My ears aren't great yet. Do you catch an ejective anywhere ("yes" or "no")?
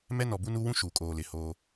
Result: yes